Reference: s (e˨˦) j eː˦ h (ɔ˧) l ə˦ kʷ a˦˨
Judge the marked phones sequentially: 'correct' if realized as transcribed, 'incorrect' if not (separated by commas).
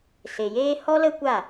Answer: incorrect, incorrect